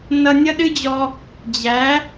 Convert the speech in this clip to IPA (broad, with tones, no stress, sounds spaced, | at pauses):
n ʌ˧ nʲ ʌ˥ ɗ ɨ˥ d͡ʑ ɔ˧ | d͡ʑ æ˩˥